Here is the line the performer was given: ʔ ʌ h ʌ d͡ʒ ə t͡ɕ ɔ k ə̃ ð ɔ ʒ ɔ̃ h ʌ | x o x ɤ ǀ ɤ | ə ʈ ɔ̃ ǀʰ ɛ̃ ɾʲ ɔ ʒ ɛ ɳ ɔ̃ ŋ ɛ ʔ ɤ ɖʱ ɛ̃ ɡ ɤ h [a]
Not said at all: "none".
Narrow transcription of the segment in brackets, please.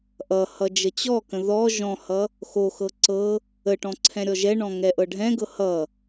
ʌ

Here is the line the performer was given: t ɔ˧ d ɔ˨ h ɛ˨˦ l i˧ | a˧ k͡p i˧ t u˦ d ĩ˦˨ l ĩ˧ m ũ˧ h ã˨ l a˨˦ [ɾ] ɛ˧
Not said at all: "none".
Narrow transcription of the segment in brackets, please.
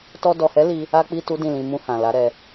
ɾ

